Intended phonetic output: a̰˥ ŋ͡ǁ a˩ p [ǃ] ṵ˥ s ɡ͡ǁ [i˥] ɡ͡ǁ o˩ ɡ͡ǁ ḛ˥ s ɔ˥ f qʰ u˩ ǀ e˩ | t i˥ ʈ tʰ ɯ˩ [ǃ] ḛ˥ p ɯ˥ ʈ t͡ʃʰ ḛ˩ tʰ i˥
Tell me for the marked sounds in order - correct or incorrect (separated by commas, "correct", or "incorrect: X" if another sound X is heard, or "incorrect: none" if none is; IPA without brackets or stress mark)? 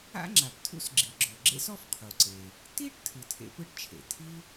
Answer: incorrect: tʰ, incorrect: i˩, incorrect: tʰ